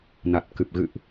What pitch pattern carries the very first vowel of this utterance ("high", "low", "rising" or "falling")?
low